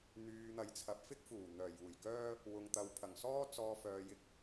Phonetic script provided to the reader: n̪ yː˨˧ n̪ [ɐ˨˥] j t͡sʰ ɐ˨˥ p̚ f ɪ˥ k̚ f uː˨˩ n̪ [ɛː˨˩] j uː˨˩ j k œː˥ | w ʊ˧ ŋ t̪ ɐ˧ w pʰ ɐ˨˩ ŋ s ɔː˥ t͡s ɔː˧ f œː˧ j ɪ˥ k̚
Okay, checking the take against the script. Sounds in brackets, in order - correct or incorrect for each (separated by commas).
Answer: correct, incorrect